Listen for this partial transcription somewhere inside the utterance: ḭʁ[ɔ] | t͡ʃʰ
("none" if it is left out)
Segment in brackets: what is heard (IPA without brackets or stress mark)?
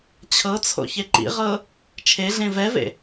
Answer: ɤ